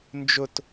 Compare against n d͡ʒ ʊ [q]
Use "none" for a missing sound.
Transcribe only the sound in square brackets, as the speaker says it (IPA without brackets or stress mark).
t